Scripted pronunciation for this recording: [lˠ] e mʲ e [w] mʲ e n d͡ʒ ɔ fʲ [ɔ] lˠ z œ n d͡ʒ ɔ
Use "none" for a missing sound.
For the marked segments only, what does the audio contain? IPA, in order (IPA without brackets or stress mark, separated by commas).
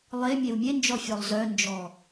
lˠ, w, ɔ